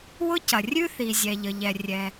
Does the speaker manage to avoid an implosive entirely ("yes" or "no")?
yes